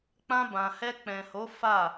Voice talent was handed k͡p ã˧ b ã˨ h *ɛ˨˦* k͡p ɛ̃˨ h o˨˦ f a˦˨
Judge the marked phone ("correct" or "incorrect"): incorrect